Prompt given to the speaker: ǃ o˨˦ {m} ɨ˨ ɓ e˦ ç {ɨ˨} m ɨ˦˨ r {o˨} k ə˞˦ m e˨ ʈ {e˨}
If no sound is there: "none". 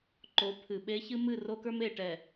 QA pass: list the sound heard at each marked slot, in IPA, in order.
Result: pʰ, ɨ˦, o˦, ɛ˨

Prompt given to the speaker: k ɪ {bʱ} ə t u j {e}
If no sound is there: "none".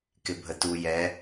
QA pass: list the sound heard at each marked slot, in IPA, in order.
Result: bʱ, ɛ

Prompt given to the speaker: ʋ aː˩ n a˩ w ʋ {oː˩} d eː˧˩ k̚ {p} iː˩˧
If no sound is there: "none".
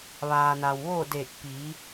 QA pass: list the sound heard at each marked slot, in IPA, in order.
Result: oː˥˨, p

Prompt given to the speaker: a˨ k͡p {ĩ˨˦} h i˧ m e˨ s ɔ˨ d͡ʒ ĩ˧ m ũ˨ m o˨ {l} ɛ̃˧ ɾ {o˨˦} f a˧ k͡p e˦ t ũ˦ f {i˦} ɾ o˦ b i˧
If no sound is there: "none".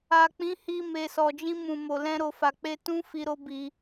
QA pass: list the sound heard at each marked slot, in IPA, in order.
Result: ĩ˨˦, l, o˧, i˦

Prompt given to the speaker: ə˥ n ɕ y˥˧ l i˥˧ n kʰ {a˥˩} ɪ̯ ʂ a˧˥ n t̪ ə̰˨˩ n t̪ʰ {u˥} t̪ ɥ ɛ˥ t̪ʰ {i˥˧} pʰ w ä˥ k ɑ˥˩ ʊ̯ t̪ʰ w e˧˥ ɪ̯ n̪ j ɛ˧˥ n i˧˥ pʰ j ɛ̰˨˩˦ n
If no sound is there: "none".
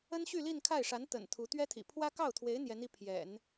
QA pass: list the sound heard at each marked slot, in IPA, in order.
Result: a˥˩, u˧˥, ḭ˨˩

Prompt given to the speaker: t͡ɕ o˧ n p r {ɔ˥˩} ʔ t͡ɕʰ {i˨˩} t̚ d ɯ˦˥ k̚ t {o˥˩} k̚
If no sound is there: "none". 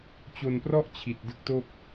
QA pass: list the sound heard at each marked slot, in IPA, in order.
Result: ɔ˥˩, i˨˩, o˥˩

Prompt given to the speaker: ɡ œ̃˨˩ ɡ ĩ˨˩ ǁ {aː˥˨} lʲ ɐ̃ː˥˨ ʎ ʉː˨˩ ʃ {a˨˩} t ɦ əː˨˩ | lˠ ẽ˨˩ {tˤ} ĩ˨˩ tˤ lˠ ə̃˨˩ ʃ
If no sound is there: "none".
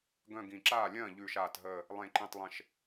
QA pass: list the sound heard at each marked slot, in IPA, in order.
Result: aː˥˨, aː˨˩, ǃ

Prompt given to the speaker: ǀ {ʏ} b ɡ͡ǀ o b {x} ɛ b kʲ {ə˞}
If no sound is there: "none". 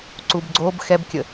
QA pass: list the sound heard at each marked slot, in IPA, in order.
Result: u, x, ə

